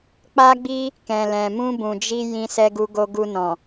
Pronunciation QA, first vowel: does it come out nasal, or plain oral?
oral